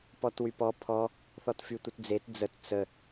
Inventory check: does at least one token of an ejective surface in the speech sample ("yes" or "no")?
no